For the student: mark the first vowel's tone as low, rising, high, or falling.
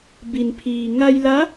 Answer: low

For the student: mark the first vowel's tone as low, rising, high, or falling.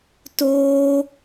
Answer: high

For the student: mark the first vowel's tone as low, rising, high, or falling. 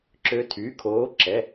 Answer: rising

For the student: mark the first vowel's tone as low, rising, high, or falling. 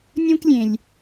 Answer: high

